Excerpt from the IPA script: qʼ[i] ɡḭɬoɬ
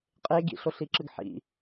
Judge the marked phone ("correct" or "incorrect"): incorrect